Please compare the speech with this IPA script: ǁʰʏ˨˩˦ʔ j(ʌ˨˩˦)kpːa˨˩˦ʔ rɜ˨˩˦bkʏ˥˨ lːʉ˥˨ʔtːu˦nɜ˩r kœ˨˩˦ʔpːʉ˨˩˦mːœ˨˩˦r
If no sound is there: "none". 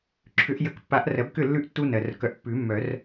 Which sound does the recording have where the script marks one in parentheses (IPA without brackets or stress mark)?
ə˨˩˦